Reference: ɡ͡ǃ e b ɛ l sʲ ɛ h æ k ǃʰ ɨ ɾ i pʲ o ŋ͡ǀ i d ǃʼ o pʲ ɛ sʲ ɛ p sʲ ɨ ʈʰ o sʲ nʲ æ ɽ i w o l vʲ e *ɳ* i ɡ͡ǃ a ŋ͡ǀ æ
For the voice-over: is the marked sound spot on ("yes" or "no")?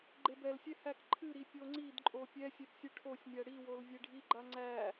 no